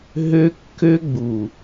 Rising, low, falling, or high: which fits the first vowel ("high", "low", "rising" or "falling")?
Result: high